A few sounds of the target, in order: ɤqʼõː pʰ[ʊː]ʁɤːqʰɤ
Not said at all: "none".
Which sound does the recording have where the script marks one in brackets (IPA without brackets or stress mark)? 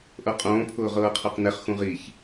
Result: ʊː